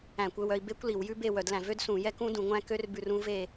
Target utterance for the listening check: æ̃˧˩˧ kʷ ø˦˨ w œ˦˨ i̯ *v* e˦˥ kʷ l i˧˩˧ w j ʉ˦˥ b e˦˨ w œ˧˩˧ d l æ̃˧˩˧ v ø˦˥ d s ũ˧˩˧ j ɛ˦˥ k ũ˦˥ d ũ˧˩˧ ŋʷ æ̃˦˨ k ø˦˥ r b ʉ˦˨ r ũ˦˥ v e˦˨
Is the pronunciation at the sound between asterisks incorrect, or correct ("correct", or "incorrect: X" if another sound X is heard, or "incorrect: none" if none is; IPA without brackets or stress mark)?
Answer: incorrect: b